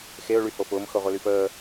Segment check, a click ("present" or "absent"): absent